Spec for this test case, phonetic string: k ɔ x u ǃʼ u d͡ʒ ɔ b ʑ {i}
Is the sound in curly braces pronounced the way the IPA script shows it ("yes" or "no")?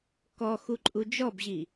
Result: yes